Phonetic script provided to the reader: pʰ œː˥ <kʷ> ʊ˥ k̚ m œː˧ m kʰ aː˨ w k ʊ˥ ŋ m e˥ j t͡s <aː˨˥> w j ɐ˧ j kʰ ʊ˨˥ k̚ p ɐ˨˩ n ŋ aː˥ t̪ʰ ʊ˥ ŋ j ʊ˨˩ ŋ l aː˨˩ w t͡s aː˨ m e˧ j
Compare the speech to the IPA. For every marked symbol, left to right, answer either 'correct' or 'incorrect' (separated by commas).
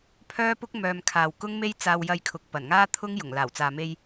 incorrect, incorrect